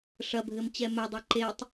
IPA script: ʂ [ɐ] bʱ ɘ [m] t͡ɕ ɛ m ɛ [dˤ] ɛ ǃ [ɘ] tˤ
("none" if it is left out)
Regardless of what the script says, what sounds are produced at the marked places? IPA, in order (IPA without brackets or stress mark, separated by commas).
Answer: ɐ, m, dˤ, e